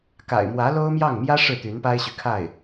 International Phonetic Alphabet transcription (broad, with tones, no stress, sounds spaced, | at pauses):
k a̰˨˩ ɪ̯ m w ä˧˥ l o˥ ʊ̯ m j ɑ˥˩ ŋ m j ä˥ ʂ ɻ̩˥˩ t̪ y˧˥ n p a˥ ɪ̯ ɕ y˨ kʰ a˥˩ ɪ̯